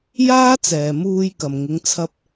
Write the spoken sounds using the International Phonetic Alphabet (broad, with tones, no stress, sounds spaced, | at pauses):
j aː˥ t͡s ɛː˨ m uː˧ j k ɐ˨ m ŋ ɪ˨˧ ŋ t͡sʰ ɐ˧ p̚